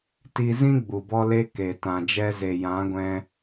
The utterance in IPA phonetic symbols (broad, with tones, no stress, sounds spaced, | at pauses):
t i˧ z ĩ˦ ɡ͡b u˨ b ɔ˦ l e˦ k e˨ t ã˨ d͡ʒ ɛ˧ z e˨ j ã˨˦ ɡʷ ɛ̃˧